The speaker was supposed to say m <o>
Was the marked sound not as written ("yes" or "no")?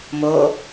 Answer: no